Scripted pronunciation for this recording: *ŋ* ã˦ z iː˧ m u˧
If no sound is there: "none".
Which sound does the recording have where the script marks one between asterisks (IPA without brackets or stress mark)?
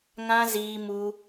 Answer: ŋ